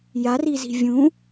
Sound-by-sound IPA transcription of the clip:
j a r i z i̤ vʲ ũ

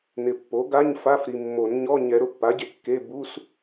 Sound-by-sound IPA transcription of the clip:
n ɪ˨ pː o˩˥ ɡ a˧˥˧ ɲ f a˧˥˧ f ɾ i˨ mː o˨˩˦ n ɲ ɔ˧˥˧ ɲ ɛ˨˩˦ ɾ ʊ˨ pː a˩˥ ɟ e˨ kː e˧˥˧ b u˧˥˧ s

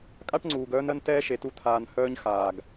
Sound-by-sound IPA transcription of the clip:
kʼ a˥ ʈ ŋ͡ǀ uː˩ ɡ œː˦ n ɜ˦ n t ɛː˥ ʃ e˩ t u˦ t̪ʰ aː˨ n h œː˦ ɲ x aː˩ ɡ

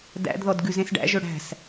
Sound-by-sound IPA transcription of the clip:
d æ̰ d ð ɔ d ɡ ʉ z ẽ s ɖ æ̰ ʒ ɵ ɽ æ̤ s

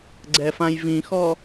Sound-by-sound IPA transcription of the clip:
ɡ͡ǀ ɛ f ã j v ĩ x ɔ

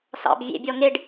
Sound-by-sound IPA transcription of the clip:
s ɑ̰ b vʲ ḛ bʲ ɔ ŋ e ɖ

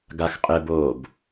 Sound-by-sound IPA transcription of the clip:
ɡ a x qʼ ɪ b oː b

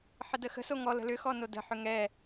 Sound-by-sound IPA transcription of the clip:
ħ ə d ə x ə̤ s o ŋ ɔ l ə̤ l ʏ x ɔ n o d ə̤ ħ ʏ ŋ ɛ

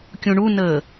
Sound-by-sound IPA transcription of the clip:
kʲ ũ ɳ u n əː

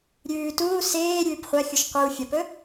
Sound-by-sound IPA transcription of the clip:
ɾʲ ʉː t uː s eː ɾʲ ʉː p χʷ a xʲ u ʃ qʷ i w fʲ ɐ p ɵ

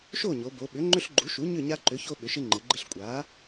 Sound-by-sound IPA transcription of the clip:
ʃ o˥˨ ɲ o˩˧ b o˩˧ ɓ ʏ˩˥ ŋ͡ǃ ʏ˦ ɬ ɡ͡ǃ u˩˥ ʃ u˩˥ ɲ ʏ˥˨ ɲ a˦ ǃ ʏ˩˥ ç o˦ ɓ ʏ˩˧ ʃ ɪ˦ ŋ͡ǃ ɪ˩˧ ɡ͡ǃ ɪ˦ ɬ kʷʼ a˩˥

